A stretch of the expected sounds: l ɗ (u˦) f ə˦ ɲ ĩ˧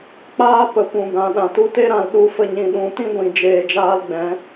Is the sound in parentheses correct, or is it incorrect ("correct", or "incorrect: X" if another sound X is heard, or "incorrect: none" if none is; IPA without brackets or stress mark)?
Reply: correct